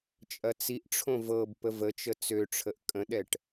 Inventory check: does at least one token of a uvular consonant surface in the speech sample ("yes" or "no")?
no